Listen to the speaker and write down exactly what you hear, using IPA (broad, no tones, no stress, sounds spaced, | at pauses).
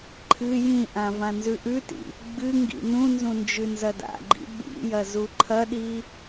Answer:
ǃʰ ɨ j ĩ ʔ ã v ã n z ʉ ʔ ʉ t ḭ | ɡ͡b ɨ ŋ ɡ ḭ n ũ n z ũ n d͡ʒ ʉ n z ɐ d a̰ ɡ͡ǃ ḭ ɓ ḭ j ɐ z u ǃʰ ɐ ɗ i